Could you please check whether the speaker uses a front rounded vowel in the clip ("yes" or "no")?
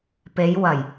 no